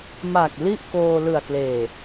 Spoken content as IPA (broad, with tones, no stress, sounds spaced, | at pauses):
m a˨˩ k̚ l i˥˩ ʔ k oː˧ l ɯ˨˩ a̯ k l eː˨˩